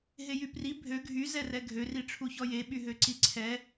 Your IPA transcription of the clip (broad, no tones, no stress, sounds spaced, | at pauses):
ɦ e j y p r i bʱ ø ɡʱ y z ɛ r ɛ ɡʱ ø r i ʈ͡ʂʰ u ç ɔ j e ɓ y ɦ ø ǀ i ǀʰ ɛ